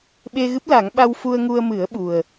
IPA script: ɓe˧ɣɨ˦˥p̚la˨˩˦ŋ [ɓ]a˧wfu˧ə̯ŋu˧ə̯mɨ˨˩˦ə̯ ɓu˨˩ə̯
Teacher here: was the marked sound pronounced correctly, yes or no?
yes